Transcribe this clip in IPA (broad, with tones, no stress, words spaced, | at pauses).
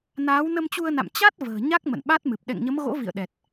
naː˨˦w nə˧mt͡ɕu˧ə̯na̰˧˨m t͡ɕa˦˥t̚ və̤ː˨˩ ɲa˦˥k̚ mə̰˧˨nɓa˦˥t̚mɨ˨˩p̚ ɗɛ̰˧˨ŋɲə˨˦mɣo̰˧˥ vḭ˧˨ə̯ɗɛ˨˩t̚